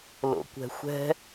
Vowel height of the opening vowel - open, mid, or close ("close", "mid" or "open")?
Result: mid